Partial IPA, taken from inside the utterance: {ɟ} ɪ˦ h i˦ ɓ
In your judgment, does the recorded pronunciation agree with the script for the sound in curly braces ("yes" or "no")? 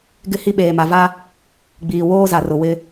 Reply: no